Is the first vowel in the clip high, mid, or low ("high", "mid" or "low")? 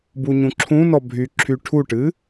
high